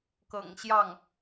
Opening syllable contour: low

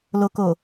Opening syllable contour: low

